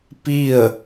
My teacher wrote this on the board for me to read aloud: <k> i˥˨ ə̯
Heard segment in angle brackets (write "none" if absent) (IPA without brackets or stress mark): p